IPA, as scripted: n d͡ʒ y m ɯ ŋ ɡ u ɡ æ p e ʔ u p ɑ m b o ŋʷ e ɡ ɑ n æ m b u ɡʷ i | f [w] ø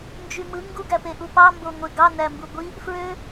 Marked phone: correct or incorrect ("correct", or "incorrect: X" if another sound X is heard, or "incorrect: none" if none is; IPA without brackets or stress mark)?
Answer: incorrect: ɹ